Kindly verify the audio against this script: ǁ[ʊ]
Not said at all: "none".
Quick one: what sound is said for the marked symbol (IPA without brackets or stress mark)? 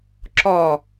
ɔ